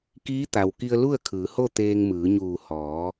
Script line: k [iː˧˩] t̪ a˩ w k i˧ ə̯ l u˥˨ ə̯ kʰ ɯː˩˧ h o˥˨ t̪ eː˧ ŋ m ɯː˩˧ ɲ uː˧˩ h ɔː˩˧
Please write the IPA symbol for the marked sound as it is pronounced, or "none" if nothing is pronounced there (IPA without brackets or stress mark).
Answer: iː˧˥